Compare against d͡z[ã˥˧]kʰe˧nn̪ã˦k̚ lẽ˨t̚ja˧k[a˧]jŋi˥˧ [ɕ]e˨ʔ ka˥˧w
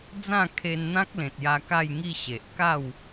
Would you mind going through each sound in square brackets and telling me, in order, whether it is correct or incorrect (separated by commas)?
correct, incorrect, correct